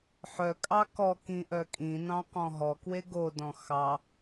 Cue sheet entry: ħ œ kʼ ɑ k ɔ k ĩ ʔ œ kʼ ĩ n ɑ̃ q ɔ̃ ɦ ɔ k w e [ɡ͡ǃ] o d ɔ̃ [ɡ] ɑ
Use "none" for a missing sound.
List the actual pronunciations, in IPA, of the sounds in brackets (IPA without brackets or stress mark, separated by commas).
ɡ, x